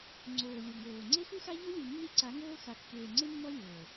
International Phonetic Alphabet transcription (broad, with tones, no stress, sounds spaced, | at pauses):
ŋ͡ǀ oː˨ lʲ o˨ ŋ oː˨ ŋ͡ǀ e˦ x u˦ x a˦ ʎ ɤ˦ lʲ u˨ nː i˦ ǀ a˨˦ ŋ oː˦ x a˨ kː eː˨ ŋ͡ǀ e˦ mː ɔ˦ lʲ oː˨